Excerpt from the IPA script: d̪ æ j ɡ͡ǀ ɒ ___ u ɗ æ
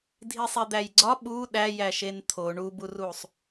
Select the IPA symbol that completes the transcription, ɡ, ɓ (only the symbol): ɓ